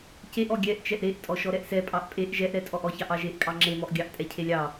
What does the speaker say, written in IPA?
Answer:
ceʔɔ ɡʲɛʔt͡ʃɛʔ ɾeʔ tʼɔʃɔɾɛʔsɛ pʼɑʔpʼeʔ ʒɛʔɾɛtʼɔʔɔ çɑʔɑʒeʔkʼɑ ŋ͡ǁemɔʔɡʲɑʔ tʼɛcʰelʲɑ

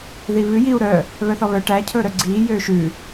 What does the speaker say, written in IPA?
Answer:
ðiβʉ jiu̯ ɾœ | βœθɔβœ ʈæ cʰɵːɾœɡ͡ǀiː jøːʃʉ

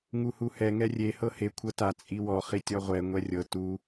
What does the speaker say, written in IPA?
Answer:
ŋuhuhɛ ŋɛrʲe hɤhe kʷʰɤta t͡sʼiwɔ χitʲɔʁʷɛ ŋʷɛrʲɤ tu

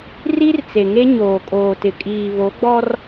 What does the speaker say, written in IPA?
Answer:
ri˦rt͡se˨ŋe˦ ɲoː˨kʼoː˨tɪ˨ kʼiː˨βo˨˦ɡ͡bɔ˦r

